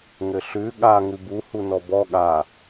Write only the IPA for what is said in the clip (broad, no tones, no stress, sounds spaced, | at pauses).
ŋ ɘ ɬ ʉ ɠ a ŋ ʉ b u h u n ɔ b ɔ ɠ a